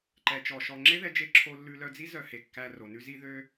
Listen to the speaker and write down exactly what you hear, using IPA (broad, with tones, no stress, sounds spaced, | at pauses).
ǃ ɛ˨ t͡ʃ ɔ˨ ʃ ɔ˨ ŋ͡ǁ e˦ ð ɛ˧ d͡ʒ e˧ ǁʰ o˧ lː ʉ˧ l œ˧ d͡z i˦ z œ˧ h e˨ kː æ˧ r o˨ n ʉ˦ z i˦ ð ø˦